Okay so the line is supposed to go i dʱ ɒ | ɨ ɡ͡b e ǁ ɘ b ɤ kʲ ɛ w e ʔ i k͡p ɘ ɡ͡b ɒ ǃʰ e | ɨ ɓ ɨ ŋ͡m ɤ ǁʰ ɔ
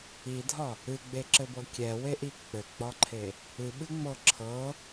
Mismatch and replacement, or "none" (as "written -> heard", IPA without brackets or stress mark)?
ɔ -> ɤ